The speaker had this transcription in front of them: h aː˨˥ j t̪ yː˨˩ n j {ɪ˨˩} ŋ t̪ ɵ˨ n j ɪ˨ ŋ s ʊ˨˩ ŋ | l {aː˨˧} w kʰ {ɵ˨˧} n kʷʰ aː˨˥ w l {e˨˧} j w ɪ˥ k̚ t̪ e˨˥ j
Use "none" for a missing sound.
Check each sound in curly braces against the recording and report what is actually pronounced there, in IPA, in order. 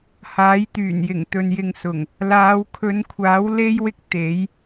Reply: ɪ˨˩, aː˨˧, ɵ˨˧, e˥

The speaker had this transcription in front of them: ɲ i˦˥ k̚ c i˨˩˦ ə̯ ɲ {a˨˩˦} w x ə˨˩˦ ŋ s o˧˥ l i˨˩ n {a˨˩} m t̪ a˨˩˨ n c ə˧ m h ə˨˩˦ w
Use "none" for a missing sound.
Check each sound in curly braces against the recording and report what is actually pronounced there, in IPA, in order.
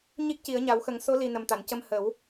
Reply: a˨˩˦, ə˨˩

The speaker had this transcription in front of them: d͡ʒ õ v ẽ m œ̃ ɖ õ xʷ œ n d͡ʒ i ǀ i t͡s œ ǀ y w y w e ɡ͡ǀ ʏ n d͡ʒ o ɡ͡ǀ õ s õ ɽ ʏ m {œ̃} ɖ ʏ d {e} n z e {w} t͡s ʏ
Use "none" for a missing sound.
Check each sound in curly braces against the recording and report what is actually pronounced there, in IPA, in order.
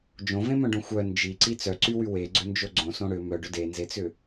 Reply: œ, e, none

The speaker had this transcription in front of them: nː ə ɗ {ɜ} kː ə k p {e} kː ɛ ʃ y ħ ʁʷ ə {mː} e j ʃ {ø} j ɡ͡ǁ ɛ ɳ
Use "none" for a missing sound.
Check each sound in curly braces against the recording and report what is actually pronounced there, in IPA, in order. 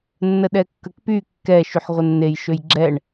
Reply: ɛ, y, nː, ø

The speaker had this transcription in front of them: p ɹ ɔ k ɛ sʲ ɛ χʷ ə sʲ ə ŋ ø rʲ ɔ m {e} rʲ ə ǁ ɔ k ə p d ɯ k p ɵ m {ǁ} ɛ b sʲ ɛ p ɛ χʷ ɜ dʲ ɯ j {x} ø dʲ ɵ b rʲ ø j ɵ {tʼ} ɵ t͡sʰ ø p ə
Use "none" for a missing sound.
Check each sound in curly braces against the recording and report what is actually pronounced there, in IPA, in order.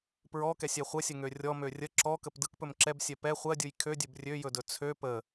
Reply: ø, ǁ, kʰ, d

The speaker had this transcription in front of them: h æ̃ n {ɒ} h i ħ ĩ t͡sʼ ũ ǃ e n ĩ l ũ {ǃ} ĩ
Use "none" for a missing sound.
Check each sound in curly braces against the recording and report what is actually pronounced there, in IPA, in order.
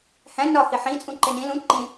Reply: ɒ, ǃ

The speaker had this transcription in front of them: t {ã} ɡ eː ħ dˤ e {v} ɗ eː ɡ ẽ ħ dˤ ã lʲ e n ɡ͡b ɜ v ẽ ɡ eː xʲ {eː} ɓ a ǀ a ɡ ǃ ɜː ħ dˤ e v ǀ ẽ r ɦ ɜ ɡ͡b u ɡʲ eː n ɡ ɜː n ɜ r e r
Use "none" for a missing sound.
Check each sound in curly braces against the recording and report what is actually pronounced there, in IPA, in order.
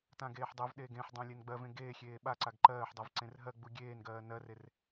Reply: ã, v, eː

